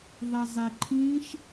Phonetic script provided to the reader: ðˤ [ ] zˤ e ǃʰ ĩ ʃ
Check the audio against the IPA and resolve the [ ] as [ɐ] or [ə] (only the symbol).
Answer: ɐ